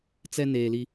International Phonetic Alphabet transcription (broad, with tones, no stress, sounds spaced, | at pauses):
t͡s ɛ˦ n eː˨ l i˦